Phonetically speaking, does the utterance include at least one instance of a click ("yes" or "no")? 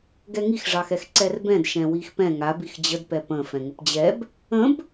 yes